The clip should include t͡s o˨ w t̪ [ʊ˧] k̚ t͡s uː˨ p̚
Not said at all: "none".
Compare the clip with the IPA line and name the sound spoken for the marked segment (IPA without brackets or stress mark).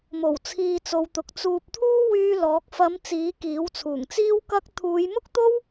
ʊ˨